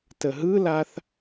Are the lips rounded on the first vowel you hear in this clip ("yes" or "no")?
no